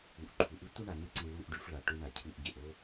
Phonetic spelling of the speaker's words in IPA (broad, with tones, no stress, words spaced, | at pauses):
u˨ʔǃʰu˨ʔɨ˦ tʷɨ˦ɳa˨nɨ˧ǀi˨ ɭu˦˨ʔɖʉ˧f ɭa˨ʈu˧ɳa˨ cʰɨ˧ʔɟe˨ʔ o˦